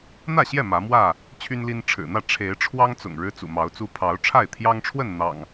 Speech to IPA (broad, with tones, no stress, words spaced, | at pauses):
n̪ä˥˨ɕjɛ˥˨ mä˨˦mwä˥˨ | t͡ɕʰy˦nli˦n ʈ͡ʂʰɻ̩˨˩n̪ä˥˨ ʈ͡ʂʰe˨˦ɪ̯ʈ͡ʂʰwɑ˦ŋt͡sʊ̰˨˩ŋ ɻɻ̩˦t͡sṵ˨˩mɑ˨˦ʊ̯t͡su˦ pʰɑ˨˦ʊ̯ʈ͡ʂʰa˥˨ɪ̯t̪ʰjɑ˦ŋʈ͡ʂʰwə˥˨n n̪ɑ̰˨˩ŋ